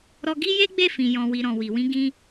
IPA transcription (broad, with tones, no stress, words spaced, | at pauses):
ɾɔ˧ ɡi˦je˦ɡ͡be˦˨fĩ˨ jɔ̃˨wi˨ ɾɔ̃˨wi˨wĩ˧ ɡĩ˧